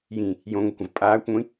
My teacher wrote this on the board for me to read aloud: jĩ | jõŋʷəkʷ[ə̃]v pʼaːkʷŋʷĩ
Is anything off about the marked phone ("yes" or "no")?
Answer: no